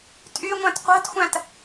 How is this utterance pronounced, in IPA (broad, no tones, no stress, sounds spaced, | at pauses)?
tʼ y ŋʷ æ̃ t qʷ æ̤ t xʷ æ̃ t